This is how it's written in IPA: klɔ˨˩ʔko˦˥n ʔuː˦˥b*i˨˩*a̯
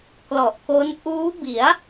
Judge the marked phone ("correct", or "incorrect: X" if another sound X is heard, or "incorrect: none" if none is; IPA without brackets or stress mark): incorrect: i˩˦